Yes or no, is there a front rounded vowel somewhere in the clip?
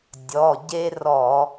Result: no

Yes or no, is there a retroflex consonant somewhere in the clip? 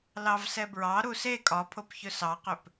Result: no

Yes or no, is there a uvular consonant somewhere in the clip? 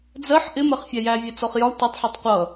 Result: yes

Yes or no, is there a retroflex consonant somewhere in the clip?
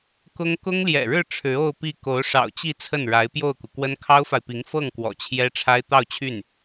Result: yes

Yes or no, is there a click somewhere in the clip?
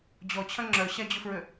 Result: yes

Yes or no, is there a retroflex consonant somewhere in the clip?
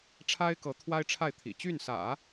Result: yes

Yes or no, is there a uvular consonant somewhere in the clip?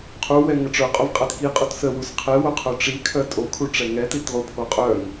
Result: yes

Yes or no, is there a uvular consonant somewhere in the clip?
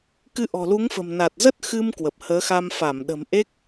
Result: no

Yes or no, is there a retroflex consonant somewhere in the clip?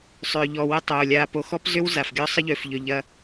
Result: no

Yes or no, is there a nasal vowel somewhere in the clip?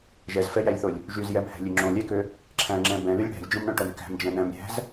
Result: yes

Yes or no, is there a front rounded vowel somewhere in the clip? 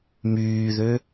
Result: yes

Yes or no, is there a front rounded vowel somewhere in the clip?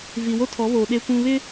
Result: no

